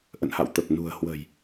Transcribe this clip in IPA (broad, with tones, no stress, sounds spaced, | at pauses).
ʔ ə̰˧˨ n h a̰˧˨ w t̪ ə˨˩ p̚ n ṳ˨˩ ə̯ h w ə̤˨˩ j